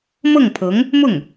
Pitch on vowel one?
falling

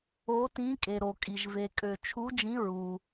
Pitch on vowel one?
rising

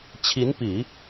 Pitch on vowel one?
rising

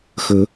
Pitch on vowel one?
rising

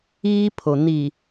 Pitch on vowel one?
high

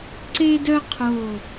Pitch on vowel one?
high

